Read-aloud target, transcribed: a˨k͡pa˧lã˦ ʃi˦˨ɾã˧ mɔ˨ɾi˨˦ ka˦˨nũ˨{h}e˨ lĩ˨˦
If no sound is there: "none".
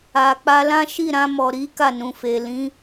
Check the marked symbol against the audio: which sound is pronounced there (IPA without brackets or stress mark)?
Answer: f